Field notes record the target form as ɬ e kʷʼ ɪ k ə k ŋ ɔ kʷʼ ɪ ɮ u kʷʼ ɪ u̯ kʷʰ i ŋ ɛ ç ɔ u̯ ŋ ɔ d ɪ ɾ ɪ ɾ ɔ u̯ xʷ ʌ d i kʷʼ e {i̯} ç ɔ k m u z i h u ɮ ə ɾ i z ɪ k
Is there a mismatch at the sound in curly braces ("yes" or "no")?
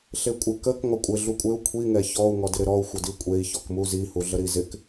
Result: no